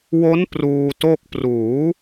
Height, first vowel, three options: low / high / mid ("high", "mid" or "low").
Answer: mid